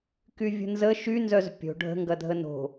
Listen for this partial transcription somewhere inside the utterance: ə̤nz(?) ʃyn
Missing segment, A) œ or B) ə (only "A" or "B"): B